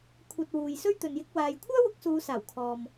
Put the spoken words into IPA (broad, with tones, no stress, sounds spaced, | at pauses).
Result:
kʷʰ ɐ˨ t̚ w uː˨ j s ɵ˥ ɥ t̪ ɵ˨ n j ɪ˧ k̚ w aː˨ j kʷʰ œː˥ w ʊ˨˥ k̚ s uː˨˧ s aː˨˩ w kʰ ɔː˨ m